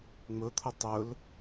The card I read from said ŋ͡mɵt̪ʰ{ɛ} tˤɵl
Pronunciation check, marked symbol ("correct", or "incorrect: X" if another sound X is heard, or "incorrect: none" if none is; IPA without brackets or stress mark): incorrect: ə